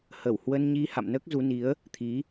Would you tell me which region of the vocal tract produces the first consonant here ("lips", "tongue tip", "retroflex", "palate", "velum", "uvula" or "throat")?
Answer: throat